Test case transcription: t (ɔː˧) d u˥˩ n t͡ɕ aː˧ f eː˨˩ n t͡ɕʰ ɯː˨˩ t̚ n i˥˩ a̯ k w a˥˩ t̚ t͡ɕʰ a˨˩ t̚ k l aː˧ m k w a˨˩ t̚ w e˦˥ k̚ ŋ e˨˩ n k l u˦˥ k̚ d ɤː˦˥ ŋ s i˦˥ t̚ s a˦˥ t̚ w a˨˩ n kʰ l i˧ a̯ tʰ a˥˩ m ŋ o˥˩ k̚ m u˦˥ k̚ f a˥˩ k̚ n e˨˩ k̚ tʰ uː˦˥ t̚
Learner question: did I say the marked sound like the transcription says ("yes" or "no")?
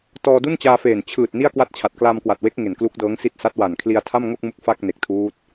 yes